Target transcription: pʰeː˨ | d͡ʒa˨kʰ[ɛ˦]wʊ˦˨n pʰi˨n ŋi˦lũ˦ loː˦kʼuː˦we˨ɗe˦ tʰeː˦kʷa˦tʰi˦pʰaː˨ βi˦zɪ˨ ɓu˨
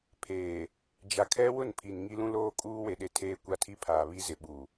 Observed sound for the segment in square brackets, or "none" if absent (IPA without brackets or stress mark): ɛ˦